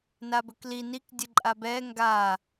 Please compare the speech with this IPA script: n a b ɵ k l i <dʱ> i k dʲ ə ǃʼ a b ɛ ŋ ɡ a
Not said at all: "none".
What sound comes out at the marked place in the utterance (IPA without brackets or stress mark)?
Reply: n